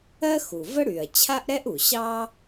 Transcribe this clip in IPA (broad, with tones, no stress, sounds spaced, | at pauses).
ɜ˥ x u˩ v ə˥ ɽ y˩ ɐ̯ t͡ɕʰ a˥ ʔ ɾ ɛ˥ ʔ u˩ ɕ ɑ˥